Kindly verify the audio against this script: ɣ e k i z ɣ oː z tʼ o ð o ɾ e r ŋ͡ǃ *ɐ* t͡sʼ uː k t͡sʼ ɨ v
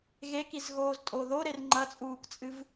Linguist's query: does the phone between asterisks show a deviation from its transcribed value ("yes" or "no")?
no